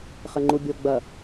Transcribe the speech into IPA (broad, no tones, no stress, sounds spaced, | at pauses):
χ ɘ ŋ͡ǃ u bʲ o ɡ͡b ɐ